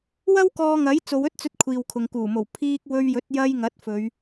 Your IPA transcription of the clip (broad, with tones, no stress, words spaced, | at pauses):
wɐ˥wkɔː˧ŋɐ˨˥j t͡so˨˧wɵ˥t̚t͡sɵ˧t̚ kʷʰiː˨wkʰʊ˨ŋkuː˨˩mo˨˩w pʰiː˧k̚ wɵ˧ɥjɵ˨˥t̚ jɐ˧j ŋɐ˨˥t̚fɵ˨˧ɥ